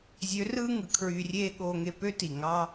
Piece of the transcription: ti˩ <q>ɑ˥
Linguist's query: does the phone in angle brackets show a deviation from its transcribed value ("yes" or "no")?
yes